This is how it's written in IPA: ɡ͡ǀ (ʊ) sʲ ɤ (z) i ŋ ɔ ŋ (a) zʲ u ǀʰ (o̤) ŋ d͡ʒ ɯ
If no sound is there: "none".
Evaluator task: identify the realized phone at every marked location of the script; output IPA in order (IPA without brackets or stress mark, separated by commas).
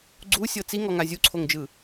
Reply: u, t͡s, a, o